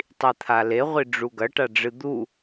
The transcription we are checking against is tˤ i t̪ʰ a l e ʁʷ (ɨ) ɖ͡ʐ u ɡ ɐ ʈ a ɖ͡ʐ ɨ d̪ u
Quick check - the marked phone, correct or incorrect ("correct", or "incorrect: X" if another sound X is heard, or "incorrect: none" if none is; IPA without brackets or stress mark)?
incorrect: i